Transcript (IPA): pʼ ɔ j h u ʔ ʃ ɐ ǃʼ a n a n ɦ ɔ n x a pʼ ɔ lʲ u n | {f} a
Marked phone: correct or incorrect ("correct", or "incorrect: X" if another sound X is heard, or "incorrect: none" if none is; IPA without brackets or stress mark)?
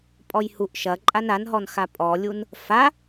correct